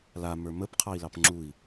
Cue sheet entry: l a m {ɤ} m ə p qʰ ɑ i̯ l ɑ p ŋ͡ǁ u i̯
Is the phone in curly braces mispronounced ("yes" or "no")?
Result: yes